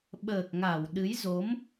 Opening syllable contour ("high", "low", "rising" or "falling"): low